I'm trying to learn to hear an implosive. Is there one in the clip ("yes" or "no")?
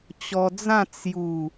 no